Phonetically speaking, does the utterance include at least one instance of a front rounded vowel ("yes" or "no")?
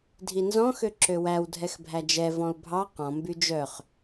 yes